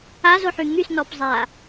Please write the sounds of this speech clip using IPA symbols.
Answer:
a z o ħ y ŋ y s n ɔ p zˤ a

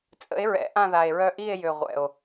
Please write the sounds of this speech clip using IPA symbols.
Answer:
t͡sʼ ə̰˨˥ e̯ ɹ ɛ̰˨˥ ʔ ã˦˨ ð a˨˩ e̯ ɹ œ˦˨ ʔ i˦˨ e̯ j ø˨˩ ʁʷ ɛ̰˨˩ o̯

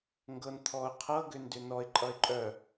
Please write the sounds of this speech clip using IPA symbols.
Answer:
ŋ ɡ ɤ n t̪ʰ ɔ ʊ̯ qʰ ɤ ɡ ʏ n d ʏ n ɔ ɪ̯ ǃʼ ʌ ɪ̯ ǃʼ œ

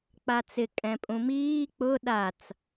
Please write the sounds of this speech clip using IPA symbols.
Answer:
k͡p a t͡s ɪ kʼ ɛ̃ pʼ ũ m iː k͡p ʊ ɗ a t͡s

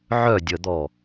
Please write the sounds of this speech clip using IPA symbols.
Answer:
ʕ œ dʲ ə d̪ ɔ

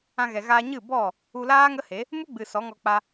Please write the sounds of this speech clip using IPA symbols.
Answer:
ã˧ ɣ ɛ˨ ɣ aː˧ ɲ ɨ˦˨ b ɔ˦˨ | u˧ l aː˦ ŋ ə˦ h e˨˦ | m u˦ ɡ͡b ɨ˨ s ɔ˨˦ ŋ ɔ˧ k͡p a˧

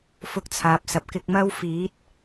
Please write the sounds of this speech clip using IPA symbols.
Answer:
f ʊ˧ k̚ t͡sʰ aː˨ p̚ s ɐ˨ p̚ k ɪ˧ k̚ m ɐ˥ w f iː˨˥ t̚

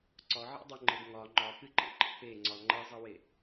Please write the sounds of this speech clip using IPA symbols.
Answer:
ǀ ɒ ʕ ḛ dˤ o ŋ͡ǃ e ɡ ŋ ɒ ŋ͡ǃ ɒ k ɨ ǃ ḛ ǃ ḛ p e ŋ͡ǀ ɒ ŋ͡ǃ ɛ zˤ ʌ w e

